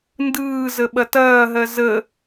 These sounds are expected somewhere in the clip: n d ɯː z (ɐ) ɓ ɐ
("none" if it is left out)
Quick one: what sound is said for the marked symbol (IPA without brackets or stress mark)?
ə